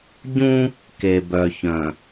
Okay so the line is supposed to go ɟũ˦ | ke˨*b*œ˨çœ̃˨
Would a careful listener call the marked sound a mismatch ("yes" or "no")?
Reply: no